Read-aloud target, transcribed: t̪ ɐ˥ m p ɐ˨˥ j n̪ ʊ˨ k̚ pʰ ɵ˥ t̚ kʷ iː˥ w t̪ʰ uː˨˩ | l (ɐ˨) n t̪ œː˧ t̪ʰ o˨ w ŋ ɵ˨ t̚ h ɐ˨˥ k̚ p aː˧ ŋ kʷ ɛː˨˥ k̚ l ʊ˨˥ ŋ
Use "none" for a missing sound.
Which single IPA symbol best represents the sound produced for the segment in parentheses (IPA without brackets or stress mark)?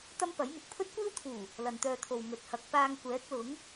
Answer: ɐ˨